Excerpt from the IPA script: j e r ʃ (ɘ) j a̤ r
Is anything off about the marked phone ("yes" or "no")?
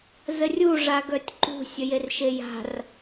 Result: yes